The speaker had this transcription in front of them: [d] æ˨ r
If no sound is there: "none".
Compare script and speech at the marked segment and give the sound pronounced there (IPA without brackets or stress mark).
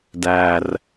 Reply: d